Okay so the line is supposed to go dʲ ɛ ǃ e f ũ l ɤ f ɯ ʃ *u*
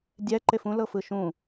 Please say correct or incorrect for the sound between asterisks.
incorrect